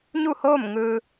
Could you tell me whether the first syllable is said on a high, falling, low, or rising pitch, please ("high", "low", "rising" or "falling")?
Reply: falling